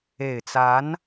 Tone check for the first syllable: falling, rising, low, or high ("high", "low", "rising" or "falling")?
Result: low